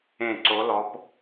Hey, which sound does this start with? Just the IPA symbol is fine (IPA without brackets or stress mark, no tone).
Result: ẽ